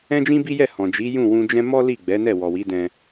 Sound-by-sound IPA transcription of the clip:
ɛ̃˦ d͡ʒ ĩ˦ b i˦ j ɛ˦˨ h ɔ̃˨ d͡ʒ i˨˦ j ũ˦˨ w ũ˧ d͡ʒ ɛ̃˦ m ɔ˦ l i˦˨ ɡ͡b ɛ˨˦ n ɛ˦˨ w ɔ˨ w i˨˦ d ɛ̃˧

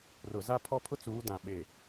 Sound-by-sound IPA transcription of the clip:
r ʊ˨ z a˦ pʰ ɔ˦ pʰ ʊ˦ t͡s uː˨˦ d ã˨ ɓ e˨

